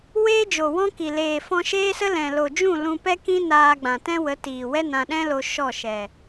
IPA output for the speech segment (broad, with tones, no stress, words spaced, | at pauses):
weː˦d͡ʒo˨wɔ̃˦ki˨ leː˨fɔ̃˧ ʃeː˦sə˦ lɛ̃˨lo˨d͡ʒũ˦˨ lũ˧pɛ˦kĩ˦ naː˧ɡ͡bã˨tɛ̃˦wə˨˦ tiː˨wɛ˦nã˧ ɗɛ̃˦lo˧ ʃɔ˦˨ʃɛ˨